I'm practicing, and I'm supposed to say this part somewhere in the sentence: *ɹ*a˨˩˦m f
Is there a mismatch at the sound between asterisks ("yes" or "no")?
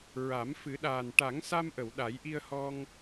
no